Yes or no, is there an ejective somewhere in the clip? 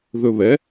no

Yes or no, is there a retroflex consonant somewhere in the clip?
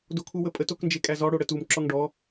yes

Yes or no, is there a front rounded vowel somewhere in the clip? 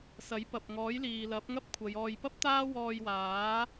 no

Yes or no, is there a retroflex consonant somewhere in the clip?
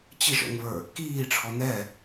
yes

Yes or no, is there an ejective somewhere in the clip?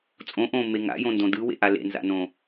yes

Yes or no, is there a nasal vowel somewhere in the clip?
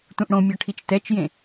yes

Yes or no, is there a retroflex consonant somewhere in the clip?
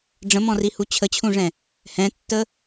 yes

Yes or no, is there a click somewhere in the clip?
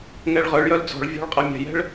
no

